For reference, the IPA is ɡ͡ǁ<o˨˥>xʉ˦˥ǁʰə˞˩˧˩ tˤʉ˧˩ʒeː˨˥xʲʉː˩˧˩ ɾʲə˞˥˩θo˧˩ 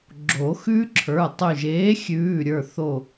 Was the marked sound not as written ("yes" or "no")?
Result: yes